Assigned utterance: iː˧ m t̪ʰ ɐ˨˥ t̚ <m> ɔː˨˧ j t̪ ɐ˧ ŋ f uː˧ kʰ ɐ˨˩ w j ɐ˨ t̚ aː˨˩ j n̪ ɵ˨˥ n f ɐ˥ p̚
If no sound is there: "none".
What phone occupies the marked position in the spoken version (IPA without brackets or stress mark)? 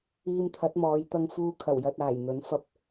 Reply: m